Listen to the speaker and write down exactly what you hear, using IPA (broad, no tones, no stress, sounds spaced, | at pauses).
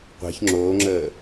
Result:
qʷ ɛ̤ ç ŋ͡ǁ oː ŋ͡ǁ əː